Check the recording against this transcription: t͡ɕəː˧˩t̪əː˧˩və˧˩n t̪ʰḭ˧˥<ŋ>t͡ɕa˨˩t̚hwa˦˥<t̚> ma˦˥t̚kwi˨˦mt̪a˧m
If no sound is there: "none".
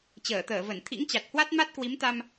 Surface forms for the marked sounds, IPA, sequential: ŋ, t̚

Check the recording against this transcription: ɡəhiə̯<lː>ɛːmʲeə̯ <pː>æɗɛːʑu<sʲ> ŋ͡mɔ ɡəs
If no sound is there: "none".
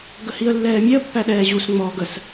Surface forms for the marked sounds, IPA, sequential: lː, pː, s

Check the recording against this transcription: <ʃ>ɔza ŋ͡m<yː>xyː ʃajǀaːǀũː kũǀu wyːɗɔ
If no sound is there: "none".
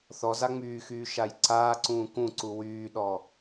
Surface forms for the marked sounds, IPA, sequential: θ, yː

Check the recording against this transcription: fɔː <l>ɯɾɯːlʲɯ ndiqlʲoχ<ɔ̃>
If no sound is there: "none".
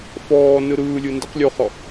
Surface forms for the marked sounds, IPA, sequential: n, ɔ

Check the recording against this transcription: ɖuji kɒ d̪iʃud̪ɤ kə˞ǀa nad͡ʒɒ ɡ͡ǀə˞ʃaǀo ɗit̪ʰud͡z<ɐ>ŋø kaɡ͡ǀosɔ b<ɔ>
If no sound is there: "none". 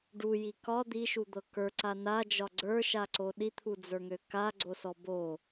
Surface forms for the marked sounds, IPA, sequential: ə˞, o

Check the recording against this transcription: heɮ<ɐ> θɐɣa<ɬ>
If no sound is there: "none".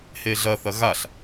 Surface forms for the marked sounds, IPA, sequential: ɐ, ɬ

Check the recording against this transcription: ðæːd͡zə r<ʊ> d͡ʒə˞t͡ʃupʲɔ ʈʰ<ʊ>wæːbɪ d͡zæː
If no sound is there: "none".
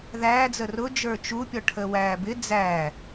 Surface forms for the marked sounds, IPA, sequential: ʊ, ə

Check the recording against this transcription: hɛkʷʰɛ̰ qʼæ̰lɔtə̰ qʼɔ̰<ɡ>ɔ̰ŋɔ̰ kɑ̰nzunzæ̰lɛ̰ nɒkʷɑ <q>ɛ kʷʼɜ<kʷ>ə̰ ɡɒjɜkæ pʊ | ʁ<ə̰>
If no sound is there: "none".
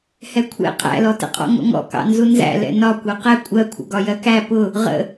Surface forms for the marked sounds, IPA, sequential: ŋ, q, kʷʰ, ə̰

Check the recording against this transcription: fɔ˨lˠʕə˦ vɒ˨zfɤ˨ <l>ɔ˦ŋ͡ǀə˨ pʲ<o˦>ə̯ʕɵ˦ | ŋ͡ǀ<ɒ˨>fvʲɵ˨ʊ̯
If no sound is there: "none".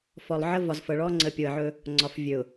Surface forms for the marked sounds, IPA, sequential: ɭ, o˨, ɒ˨

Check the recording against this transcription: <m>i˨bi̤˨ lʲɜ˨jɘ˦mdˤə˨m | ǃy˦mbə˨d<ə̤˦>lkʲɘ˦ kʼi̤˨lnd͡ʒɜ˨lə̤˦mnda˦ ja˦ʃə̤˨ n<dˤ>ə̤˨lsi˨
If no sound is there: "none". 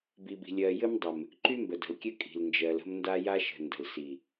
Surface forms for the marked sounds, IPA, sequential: b, ə̤˨, d

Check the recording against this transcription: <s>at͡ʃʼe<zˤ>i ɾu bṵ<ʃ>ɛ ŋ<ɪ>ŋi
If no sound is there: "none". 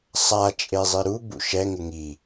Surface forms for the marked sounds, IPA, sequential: sˤ, zˤ, ʃ, ɪ

